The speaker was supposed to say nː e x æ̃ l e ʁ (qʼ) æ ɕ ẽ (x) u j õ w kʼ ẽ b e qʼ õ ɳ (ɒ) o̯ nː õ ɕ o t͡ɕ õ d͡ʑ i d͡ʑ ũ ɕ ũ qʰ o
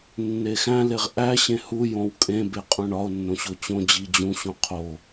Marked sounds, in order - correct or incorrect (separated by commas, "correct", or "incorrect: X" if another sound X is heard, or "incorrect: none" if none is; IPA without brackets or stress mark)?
incorrect: ʔ, incorrect: h, correct